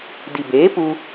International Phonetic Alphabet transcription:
d i˨ b eː˨˦ p u˧

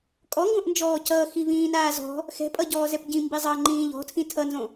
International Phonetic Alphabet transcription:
kʼ ɔ ŋ ɡ õ ʔ n d͡ʒ ɔː c ʌː x i v ĩː n aː z ɔ̤ | x ɛ̤ pʼ ʌ ɟ ɔː z ɛ p ɟ ĩ m b i zˤ ʌː ŋ͡ǃ ĩː ʎ ɔ̤ tʰ ĩ tʰ ʌ n z õ

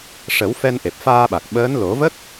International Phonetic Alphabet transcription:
ʂ ə˨˩˦ w f ɛ˧ n ʔ e˨˩ p̚ f aː˧ ɓ a˨˩ k̚ ɓ əː˧˥ n l o˨˩˦ v ə˦˥ k̚

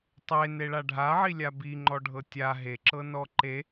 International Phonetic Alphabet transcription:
tˤ e n e ɭ a ɖʱ a ʕ i lʲ a b i ŋ͡ǃ ɔ ɖʱ ɤ tʲ a ɦ e ǁ ɤ n ɔ ǃ e

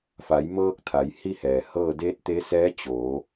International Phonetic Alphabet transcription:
f a˩˧ j m ɤː˧ k̚ t̪ʰ a˩˧ j h i˥˨ h ɛː˩ h ɤː˥˨ d eː˧˥ t̚ t̪ e˧˥ s ɛː˧˥ t͡ɕ o˩˧

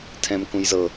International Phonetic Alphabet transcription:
tʰ ɛ̃ m k ũ j z ɤ

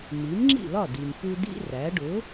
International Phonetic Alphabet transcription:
m i˩˥ m ŋ͡ǁ ḭ˥˩ l ɒ˥˩ d i˩ m p u˧ d ḭ˥ r æ˩˥ ɖ ʊ˩˥

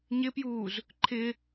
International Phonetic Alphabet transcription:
ɲ ɪ p j uː z | ǃʰ ɪ

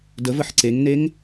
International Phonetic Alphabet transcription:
d ə v ə ħ ǀ e ŋ n e ŋ

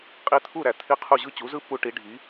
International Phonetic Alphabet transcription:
qʼ i˧ t̪ʰ u˥˩ ɾ æ˩ t̪ʰ i˥˩ qʰ u˥˩ ʑ ɯ˥˩ t͡ɕ u˩˥ z ɯ˥ pː u˧ ʈ i˩˥ ɖʱ i˩˥

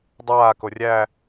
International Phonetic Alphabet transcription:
dˤ aː k o rʲ æ

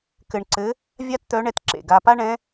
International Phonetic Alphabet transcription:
k ɘ˧ ɳ ǀ ɘ˧˥ | vʲ a˥ t t̪ œ˧˥ ɳ ɛ˧ t ǁ ḛ˩ ɡ a˧ p a˥ ɳ ɛ̃˧˥

